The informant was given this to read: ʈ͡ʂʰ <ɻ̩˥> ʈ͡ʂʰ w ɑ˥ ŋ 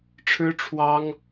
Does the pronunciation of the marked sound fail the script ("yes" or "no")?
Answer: no